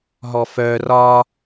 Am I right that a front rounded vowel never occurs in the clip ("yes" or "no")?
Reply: no